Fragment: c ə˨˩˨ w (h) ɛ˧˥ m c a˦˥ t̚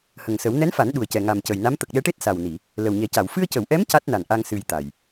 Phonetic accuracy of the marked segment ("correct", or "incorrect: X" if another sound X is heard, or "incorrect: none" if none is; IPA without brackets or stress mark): incorrect: ʔ